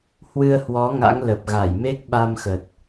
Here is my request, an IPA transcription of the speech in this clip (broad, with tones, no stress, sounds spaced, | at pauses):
h w ɨ˧ ə̯ h w ɔ˨˦ ŋ a̰˧˥ ŋ l ə˨˩ p̚ ɣ a˧˩ j m e˦˥ k̚ ɓ a˧ m x ə˨˩ t̚